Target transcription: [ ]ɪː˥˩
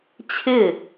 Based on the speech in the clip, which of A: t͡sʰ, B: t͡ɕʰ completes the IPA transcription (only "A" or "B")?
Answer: B